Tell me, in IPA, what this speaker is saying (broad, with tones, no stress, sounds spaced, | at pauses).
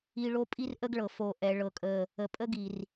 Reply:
i˨ ɭ o˦ pʼ i˦ r ʔ ə˦ ɡ ɭ ɤ˨ f o˨ ʔ ɛ˨ ɭ ɤ˨ kʼ ə˨ | ə˨ pʼ ə˦ ɡ i˨ r